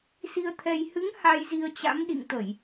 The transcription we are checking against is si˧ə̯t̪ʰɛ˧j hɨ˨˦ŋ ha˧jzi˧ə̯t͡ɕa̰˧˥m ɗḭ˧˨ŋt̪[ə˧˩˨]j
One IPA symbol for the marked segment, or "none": ə˧˩˨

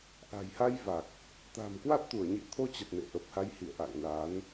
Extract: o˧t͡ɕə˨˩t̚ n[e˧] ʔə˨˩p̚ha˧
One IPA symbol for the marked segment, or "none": ḛ˧˨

